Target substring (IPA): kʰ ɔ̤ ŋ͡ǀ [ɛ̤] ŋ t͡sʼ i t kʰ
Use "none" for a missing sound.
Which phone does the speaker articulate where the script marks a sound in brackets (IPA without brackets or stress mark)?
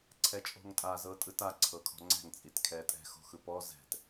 ɛ̤